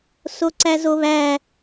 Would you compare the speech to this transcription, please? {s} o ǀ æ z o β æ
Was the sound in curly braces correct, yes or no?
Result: yes